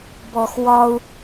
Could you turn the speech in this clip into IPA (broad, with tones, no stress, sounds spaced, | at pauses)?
b ɔ˨ x w ɒ˦ u̯